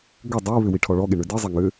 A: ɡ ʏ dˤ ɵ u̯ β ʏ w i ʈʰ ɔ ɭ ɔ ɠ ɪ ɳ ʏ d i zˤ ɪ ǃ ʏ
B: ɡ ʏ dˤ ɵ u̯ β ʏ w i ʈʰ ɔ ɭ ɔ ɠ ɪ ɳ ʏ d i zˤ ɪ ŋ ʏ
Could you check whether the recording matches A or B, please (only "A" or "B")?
B